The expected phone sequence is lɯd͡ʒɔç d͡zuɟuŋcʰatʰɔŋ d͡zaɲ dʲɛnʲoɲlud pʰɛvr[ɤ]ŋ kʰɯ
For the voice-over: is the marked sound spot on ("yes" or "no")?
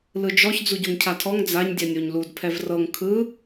yes